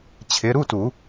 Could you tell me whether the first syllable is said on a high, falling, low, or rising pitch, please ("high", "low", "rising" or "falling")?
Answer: rising